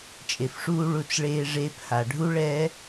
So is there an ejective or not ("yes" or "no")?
yes